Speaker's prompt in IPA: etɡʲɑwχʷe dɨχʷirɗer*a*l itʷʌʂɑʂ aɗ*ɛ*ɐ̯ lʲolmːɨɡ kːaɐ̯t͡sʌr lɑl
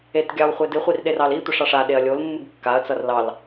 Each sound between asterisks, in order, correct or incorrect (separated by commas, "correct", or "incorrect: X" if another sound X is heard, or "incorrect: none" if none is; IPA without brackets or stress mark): incorrect: ɑ, incorrect: e